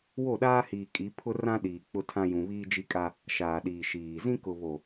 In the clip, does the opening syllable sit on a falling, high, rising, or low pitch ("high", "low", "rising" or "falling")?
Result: falling